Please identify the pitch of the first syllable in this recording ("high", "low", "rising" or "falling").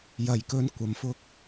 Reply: low